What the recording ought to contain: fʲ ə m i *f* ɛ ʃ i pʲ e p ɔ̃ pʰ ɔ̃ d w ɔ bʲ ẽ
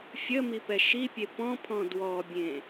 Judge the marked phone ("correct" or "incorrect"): incorrect